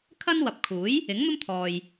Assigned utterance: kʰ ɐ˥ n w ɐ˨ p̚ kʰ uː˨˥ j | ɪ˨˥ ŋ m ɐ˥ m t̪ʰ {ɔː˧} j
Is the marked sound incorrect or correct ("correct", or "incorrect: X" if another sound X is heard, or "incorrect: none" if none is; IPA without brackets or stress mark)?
incorrect: ɔː˨